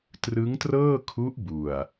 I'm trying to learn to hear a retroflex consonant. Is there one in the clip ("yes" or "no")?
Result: no